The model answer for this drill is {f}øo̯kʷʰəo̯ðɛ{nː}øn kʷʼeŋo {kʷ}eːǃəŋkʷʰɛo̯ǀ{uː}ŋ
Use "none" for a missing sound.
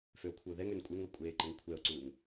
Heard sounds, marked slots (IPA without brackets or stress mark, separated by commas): f, ŋ, kʷʼ, uː